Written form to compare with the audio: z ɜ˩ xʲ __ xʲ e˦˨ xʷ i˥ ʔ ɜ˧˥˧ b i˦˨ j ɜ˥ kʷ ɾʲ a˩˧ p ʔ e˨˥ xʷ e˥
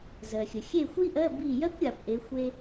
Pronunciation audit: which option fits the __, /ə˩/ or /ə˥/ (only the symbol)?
ə˩